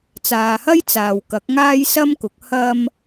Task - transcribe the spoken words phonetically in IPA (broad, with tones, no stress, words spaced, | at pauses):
t͡saː˨hɐ˥j t͡saː˨wkɐ˨˥k̚ŋaː˥j sɐ˥mkʊ˨˥k̚ hɐ˥m